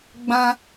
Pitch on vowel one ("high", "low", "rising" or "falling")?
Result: high